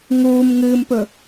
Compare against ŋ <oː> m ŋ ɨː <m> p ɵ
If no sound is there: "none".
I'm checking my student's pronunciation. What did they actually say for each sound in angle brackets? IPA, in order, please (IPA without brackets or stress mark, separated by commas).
uː, m